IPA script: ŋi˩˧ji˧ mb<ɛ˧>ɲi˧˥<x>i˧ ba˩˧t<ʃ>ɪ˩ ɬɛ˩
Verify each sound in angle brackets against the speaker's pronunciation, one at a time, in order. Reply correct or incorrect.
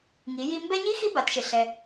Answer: correct, correct, correct

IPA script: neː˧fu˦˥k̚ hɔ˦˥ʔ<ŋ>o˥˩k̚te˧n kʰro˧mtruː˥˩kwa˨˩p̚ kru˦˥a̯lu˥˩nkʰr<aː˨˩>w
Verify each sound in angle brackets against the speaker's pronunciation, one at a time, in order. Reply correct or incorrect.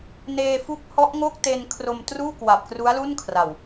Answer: correct, incorrect: a˨˩

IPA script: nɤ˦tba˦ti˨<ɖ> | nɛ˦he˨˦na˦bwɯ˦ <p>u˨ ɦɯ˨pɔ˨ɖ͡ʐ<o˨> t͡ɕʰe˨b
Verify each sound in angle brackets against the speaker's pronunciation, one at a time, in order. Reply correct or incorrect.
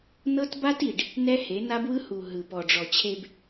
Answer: correct, incorrect: h, incorrect: ɔ˨

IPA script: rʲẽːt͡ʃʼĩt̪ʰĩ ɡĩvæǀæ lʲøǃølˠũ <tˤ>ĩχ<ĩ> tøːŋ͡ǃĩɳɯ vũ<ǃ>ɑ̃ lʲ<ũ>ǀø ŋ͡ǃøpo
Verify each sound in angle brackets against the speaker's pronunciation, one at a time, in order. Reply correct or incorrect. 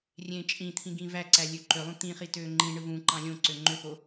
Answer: incorrect: t̪, incorrect: i, correct, incorrect: õ

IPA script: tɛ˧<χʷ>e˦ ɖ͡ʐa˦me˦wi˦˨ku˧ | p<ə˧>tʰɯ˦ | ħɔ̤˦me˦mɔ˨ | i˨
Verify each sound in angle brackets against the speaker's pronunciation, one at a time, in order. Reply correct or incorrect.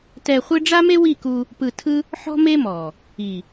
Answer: correct, incorrect: ɯ˧

